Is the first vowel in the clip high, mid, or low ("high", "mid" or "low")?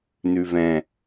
high